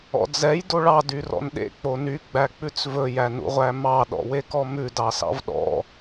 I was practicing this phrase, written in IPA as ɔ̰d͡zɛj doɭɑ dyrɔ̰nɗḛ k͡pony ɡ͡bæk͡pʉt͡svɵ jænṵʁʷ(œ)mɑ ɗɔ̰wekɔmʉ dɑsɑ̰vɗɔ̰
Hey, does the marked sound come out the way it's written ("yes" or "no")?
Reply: no